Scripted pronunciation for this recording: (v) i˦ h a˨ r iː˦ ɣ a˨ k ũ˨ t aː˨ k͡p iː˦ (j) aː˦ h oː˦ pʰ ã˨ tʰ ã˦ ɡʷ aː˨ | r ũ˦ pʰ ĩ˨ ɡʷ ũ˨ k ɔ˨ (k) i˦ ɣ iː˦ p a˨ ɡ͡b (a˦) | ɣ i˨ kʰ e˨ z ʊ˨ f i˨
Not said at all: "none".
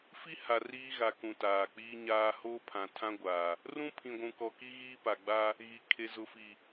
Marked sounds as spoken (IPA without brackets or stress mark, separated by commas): f, ɲ, k, a˦